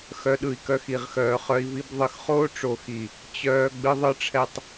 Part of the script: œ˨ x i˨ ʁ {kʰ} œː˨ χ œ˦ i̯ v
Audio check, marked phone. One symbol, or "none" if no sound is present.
x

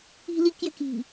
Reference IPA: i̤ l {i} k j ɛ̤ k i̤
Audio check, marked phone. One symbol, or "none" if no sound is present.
i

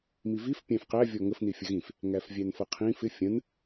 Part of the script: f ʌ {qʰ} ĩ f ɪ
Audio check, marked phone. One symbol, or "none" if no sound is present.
qʰ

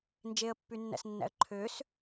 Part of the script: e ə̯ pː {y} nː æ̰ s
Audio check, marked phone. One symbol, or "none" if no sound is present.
y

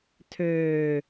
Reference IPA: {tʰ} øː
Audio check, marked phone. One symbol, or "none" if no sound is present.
tʰ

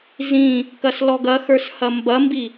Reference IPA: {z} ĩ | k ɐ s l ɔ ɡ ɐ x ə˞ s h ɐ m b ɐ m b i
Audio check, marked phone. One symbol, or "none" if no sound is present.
z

